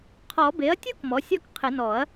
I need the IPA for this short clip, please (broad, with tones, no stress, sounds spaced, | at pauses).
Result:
qʰ ɔ˨˩˦ b e˩˥ ɐ̯ tʲ u˦˥ k m ɔ˩˥ sʲ ɔ˥˨ k qʰ ɪ˨˩˦ n ɔ˨˩˦ ɐ̯